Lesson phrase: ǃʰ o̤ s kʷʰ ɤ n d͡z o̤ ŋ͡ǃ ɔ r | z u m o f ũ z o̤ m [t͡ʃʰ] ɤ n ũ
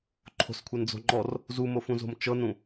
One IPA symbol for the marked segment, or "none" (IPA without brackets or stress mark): t͡ʃ